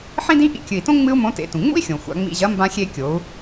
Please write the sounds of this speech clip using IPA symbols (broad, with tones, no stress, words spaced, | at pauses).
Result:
ħĩ˥dĩ˥ ʔḭ˧˥kʲɨ˩i̯tõ˥ ŋ͡mɨ˥u̯mõ˧˥ tḛ˩˧tũ˩ŋ͡mṵ˥i̯xʲõ˩ xʷa̰˩˧ŋ͡mḭ˧ʑɐ˧˥ mbã˧xʲe˧ kʲo˩˧u̯